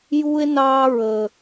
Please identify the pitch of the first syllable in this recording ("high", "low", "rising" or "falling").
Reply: high